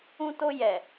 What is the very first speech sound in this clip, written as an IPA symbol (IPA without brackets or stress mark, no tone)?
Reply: ũ